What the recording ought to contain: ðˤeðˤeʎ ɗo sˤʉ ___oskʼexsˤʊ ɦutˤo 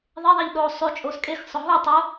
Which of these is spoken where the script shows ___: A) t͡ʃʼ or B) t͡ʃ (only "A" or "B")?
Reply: A